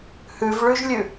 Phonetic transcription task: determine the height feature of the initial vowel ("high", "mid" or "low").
high